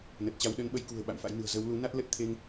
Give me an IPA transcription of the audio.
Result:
nə˨˩t̚t͡ɕa˨˦w ɗə˨˦nɓə˨˦j kṳ˨˩ə̯ ɓa̰˧˨mfa̰˧˥jnɨ̤˨˩ə̯ zə˨˦w lu˨˦na˦˥t̚lə˦˥t̚ t̪ʰe˧ŋ

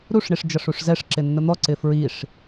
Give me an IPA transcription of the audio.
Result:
ɾuʂ ɳiʂd͡ʒʌʂuʂzɛʂ ǁɪnːʊn̪ɔ ǀɪfɹiʂ

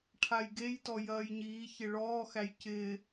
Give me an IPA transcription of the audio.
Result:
ʈʰajɡejtɔ jɐːjɲiːçɪ ɭɔːxæj cɪː

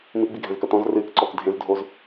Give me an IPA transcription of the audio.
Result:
miɡ͡biɡʱɛ̃zkɐ tɔ̃z rɨːkǀɔːk dʱẽzdʱoːz

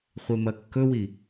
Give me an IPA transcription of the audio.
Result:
χʷemɐkːɵwi

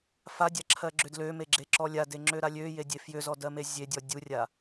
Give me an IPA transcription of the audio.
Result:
fadʲaǁʰɜɡ͡ǁʏ dlømeɡ͡ǁeǁɔ lʲadeŋ͡ǁøɾa lʲøjedʲe fjʏzɔdɜme zʲedʲɔ dʲurʲa

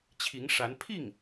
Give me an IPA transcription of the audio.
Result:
t͡ɕʰi˧˥ŋʂa˧˥n pʰi˥˩ŋ

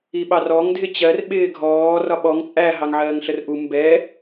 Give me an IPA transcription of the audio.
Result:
iɓɑrɔŋ dʱɪt͡ɕɜr ɓɪːɡʱɔː rɒɓɔŋ t͡sʼæ ɦɑŋʕɜːŋɬərʔu mbɛ

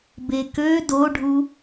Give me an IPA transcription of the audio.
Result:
bekø doɖʱu

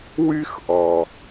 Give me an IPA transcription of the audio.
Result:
wy˥xʔɔ˩

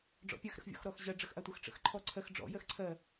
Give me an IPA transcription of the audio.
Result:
ɖ͡ʐɔ̰pʲɜx ɾə̰xvʲɔ̰x ɾɔxʑɜ ɖ͡ʐəxʔatʷəx ʈ͡ʂə̰xǃʰɔǀʰɜx ɖ͡ʐɔ̰ jɜxǀʰɜ

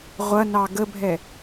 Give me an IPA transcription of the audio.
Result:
ʁʷɐnɑ ɡəbʱɛ

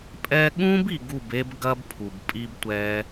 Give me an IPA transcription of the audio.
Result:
pʼɛ˧ɠũ˦b i˧ɡu˦˨be˦b ɡɐ˦bpʰu˨bpʼi˦b tʷɛ˦

